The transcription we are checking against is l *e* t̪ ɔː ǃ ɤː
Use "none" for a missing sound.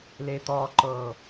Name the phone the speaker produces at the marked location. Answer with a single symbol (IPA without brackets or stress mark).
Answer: e